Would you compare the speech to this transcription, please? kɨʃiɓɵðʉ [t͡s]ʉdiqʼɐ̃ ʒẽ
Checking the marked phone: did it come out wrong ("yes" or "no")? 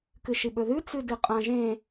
no